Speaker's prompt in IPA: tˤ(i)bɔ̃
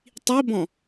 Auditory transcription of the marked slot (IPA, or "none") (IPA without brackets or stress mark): i